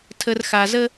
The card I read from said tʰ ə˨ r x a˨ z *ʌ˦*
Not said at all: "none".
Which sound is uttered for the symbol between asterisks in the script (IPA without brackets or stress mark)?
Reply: ə˦